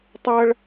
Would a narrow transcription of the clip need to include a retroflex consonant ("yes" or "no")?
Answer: yes